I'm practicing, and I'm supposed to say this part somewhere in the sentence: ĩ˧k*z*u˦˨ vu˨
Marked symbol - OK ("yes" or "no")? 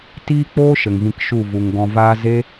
no